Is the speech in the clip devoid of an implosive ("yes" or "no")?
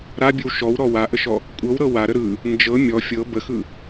yes